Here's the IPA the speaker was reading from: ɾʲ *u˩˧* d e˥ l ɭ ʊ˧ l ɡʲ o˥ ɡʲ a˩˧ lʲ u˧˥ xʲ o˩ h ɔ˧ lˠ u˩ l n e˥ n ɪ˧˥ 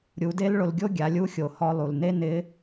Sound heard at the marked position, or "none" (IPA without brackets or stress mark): u˩˧